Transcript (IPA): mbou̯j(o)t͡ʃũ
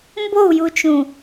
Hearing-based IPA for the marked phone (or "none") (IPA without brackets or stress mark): u